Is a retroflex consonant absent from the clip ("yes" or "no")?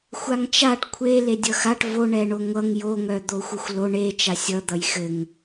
no